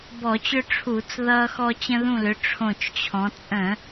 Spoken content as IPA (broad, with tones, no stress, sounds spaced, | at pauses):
b ɔ˧˩˧ t͡ɕ ʏ˦ ʈ͡ʂʰ u˧˩˧ t͡s ð ʌː˦ x ɔ˦ t͡ɕ ə̃˦ ð ũ˦˨ l ʏ˨˦ ʈ͡ʂʰ õ˦˨ t͡ʃ t͡ɕʰ ɔ̃˨˦ t͡sʼ ə̃˧˩˧